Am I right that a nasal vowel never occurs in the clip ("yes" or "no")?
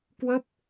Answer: yes